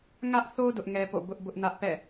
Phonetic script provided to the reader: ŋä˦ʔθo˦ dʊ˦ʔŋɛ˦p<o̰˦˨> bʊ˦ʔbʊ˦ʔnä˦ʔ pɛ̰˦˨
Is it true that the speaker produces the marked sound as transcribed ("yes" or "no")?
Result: yes